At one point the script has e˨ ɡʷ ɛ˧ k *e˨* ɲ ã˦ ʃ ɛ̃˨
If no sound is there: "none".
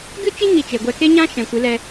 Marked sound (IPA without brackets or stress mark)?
e˦